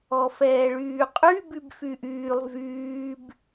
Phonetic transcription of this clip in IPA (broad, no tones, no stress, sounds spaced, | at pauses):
ɔ f ɛː ɭ yː qʼ y b y b f y ʔ yː lˠ v yː b